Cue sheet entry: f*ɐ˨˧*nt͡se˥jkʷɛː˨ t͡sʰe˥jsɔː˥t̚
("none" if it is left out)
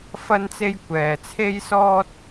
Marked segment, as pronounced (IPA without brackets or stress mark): ɐ˥